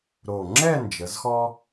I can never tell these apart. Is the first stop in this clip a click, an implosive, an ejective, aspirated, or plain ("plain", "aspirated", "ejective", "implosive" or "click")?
click